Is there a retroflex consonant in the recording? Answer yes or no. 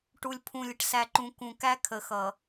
yes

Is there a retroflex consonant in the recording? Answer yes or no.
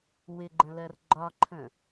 no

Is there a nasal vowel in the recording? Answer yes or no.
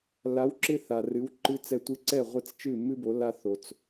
no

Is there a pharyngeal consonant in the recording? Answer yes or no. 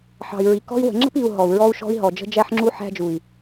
yes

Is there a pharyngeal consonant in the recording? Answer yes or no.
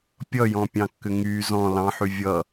yes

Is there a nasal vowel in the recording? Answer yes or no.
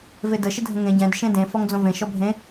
yes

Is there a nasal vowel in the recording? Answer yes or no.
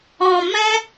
yes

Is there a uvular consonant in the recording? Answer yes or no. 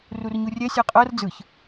yes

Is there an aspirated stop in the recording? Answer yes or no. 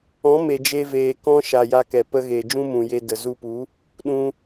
no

